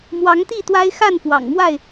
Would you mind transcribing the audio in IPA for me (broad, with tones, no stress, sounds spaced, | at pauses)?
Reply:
m w ɑ˨˦ ŋ t̪ i˥˨ t̪ w a˦ ɪ̯ x a˥˨ n f w ɑ̰˨˩ ŋ m w a˥˨ ɪ̯